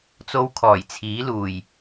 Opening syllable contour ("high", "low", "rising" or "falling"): high